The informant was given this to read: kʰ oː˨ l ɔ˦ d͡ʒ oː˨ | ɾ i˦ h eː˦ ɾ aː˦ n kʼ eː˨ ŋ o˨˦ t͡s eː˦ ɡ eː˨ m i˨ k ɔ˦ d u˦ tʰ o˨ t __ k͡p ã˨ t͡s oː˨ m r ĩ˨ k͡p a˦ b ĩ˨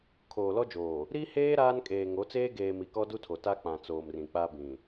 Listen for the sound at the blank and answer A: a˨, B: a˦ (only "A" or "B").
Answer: B